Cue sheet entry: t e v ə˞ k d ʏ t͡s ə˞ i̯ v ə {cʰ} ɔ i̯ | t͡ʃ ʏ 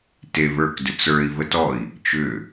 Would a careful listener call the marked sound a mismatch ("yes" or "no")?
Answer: yes